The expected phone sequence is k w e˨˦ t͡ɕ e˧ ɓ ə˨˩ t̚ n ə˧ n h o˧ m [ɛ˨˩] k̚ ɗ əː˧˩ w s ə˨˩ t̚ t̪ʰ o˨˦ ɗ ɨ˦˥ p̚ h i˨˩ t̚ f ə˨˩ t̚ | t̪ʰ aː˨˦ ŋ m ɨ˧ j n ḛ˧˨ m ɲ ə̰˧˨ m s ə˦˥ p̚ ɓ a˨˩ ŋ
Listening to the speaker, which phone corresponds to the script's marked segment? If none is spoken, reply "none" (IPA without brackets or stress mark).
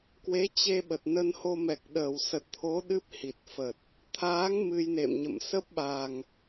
ɛ˨˩